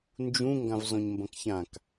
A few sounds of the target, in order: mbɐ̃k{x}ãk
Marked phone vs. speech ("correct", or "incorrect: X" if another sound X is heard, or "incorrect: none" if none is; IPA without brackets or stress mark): incorrect: ç